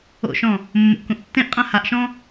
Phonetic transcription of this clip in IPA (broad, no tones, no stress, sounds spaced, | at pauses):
o̰ ʃ ɔ̃ | mː o̰ ʔ k ũ ʔ tː ẽ ʔ qʼ ã h a ʔ ʃ ɔ̃